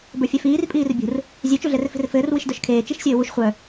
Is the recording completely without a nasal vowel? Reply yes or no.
yes